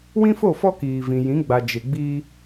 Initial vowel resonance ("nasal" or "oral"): nasal